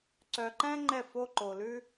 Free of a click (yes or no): no